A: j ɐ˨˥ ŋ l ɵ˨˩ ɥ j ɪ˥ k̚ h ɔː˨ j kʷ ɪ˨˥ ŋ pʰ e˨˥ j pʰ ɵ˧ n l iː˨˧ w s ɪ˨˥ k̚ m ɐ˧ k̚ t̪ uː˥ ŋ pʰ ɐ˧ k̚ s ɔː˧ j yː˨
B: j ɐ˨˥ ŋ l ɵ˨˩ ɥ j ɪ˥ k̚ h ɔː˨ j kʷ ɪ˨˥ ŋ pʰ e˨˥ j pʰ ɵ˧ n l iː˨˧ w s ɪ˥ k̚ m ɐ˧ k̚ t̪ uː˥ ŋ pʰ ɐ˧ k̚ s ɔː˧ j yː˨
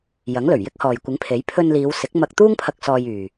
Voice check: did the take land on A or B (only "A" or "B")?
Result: A